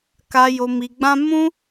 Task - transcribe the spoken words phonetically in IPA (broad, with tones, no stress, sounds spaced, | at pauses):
k a˧ j o˧ m i˧ ɡ͡b ã˦ m ũ˦